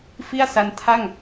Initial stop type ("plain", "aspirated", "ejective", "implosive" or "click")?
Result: aspirated